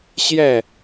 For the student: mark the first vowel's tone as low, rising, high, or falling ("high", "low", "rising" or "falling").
falling